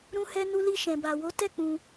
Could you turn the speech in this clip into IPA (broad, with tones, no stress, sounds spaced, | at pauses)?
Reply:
ɾ ũ˧ h ɛ˧ n u˧ l i˧ ʃ ɛ̃˨ b a˨ w o˨˦ t ɛ˦˨ k͡p ũ˧